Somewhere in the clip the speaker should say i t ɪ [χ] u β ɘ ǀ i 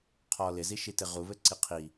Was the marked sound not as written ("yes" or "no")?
yes